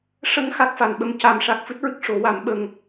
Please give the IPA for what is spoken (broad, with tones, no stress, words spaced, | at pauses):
ʂə˧ŋ xa˦˥k̚fa˨˩nɓə˧˥m ca˨˩˦mʂa˨˩k̚ fɨ˦˥t̚ɹɨ˦˥k̚ ʂo˨˩˦wa˨˩˦m ɓə˧ŋ